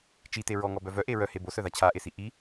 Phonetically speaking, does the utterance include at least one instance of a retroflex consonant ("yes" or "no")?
no